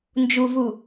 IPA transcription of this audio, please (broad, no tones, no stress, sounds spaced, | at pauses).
n d͡ʒ u v u